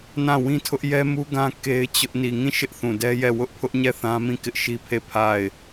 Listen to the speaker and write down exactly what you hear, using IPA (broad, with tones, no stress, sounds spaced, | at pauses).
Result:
n ã˦˨ w ĩ˦ tʰ ʊ˦ ʔ j ɛ˦ m u˦ ɡ ã˦ k e˦ ɪ̯ t͡ɕ ʊ˦ ʔ n i˨ ŋ ĩ˦˨ ʃ ɪ˦ ʔ θ ũ˨ d ɛ˦ j ɛ˦˨ w ʊ˦ ʔ pʰ ʊ˦ ʔ ɲ ɛ˦˨ θ ã˦ m ĩ˦˨ k ɪ˦ ʔ ʃ i˦ pʰ e˦˨ pʰ a˦˨ ɪ̯